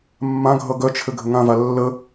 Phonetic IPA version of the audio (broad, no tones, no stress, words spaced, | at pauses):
mːãɡʱʌ ɡœt͡ʃʰɘ ɡʱɘŋãva lːə